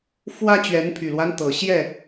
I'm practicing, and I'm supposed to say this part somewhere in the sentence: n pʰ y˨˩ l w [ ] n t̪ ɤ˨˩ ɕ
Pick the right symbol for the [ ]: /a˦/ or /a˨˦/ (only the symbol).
a˦